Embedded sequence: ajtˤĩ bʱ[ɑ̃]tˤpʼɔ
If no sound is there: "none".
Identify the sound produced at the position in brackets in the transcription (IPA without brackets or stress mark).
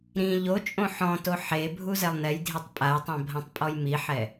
ã